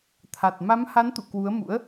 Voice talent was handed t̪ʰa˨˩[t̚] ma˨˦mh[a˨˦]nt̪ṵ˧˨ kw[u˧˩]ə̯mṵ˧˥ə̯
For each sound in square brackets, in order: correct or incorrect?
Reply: correct, correct, incorrect: u˨˦

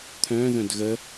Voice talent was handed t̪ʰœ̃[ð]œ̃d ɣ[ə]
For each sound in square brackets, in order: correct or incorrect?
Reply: correct, correct

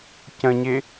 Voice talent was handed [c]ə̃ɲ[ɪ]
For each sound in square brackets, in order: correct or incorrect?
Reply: correct, correct

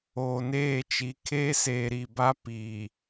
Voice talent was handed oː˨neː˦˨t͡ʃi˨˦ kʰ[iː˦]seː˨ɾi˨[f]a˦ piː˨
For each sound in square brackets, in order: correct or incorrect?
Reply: incorrect: eː˦, incorrect: b

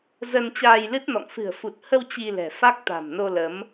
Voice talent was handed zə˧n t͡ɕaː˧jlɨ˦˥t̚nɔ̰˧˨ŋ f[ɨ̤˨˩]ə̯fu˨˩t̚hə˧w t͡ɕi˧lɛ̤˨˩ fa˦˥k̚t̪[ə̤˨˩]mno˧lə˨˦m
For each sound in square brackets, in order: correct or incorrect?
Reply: correct, incorrect: a̤˨˩

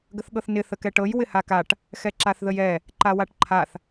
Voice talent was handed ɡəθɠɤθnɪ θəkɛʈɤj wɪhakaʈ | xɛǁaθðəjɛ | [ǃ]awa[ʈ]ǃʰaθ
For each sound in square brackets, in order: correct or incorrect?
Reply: correct, correct

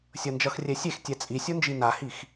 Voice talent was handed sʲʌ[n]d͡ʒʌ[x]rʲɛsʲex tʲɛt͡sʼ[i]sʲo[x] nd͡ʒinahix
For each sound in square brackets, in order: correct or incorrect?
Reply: correct, correct, correct, incorrect: none

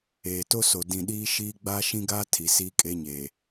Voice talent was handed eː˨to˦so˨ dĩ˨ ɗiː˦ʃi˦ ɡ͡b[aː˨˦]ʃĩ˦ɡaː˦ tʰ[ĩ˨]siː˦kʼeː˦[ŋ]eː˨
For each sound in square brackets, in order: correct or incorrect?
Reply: incorrect: aː˦, incorrect: i˨, incorrect: ɲ

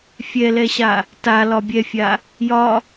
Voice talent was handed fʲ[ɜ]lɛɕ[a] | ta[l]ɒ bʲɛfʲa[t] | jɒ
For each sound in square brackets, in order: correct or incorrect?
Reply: incorrect: ɛ, correct, correct, incorrect: none

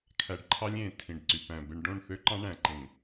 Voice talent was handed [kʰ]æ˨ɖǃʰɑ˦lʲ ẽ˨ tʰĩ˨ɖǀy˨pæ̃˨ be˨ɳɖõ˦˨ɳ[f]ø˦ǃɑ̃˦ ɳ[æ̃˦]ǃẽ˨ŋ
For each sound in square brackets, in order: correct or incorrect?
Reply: correct, incorrect: θ, incorrect: æ̃˨

